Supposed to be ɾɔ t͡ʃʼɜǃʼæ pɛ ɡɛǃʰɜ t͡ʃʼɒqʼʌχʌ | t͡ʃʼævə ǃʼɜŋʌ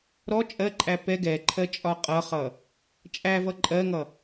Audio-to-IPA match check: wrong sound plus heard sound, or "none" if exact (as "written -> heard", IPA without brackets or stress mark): ə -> ʌ